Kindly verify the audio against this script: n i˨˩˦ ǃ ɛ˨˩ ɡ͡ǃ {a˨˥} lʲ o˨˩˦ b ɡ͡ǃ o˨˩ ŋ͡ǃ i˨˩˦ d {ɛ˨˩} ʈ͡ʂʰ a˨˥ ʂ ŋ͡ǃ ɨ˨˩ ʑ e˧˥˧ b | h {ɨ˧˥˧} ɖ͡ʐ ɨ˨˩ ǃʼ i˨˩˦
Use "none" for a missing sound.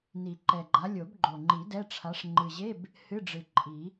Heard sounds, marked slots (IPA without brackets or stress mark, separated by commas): a˨˥, ɛ˧˥˧, ɨ˧˥˧